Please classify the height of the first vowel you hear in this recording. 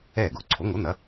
mid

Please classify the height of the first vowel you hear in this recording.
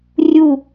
high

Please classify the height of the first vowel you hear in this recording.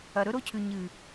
low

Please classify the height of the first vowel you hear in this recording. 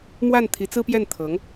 low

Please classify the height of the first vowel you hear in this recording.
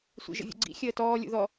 high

